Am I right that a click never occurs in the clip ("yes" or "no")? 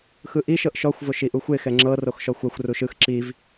no